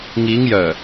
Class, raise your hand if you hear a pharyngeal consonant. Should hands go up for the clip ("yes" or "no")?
no